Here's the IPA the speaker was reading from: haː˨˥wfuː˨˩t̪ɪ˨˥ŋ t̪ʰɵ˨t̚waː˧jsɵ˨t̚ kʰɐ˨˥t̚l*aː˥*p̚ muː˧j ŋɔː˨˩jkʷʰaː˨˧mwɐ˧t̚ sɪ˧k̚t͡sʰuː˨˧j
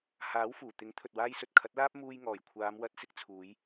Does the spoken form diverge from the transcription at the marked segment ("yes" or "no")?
no